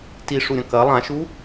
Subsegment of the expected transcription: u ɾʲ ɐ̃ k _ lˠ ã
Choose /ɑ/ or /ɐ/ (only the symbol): ɐ